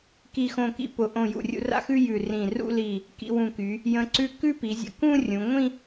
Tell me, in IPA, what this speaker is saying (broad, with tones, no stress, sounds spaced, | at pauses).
k i˧˩ x õ˧˩ k ḭ˧ p ʊ˩˧ ʔ õ˧˩ j ṵ˧˩ rʲ ṵ˧ r a̰˥ x ʉ˥ j ʉ˧˩ r ĩ˧˩ r ṵ˥˧ l i˧˩ | k ḭ˧ w ũ˧˩ k y˩˧ | j ə̃˧ ǀ ʉ˥˧ k ʉ˥˧ p i˩˧ zʲ ə̰˧ k ũ˥˧ rʲ ũ˩˧ ŋʷ ĩ˥˧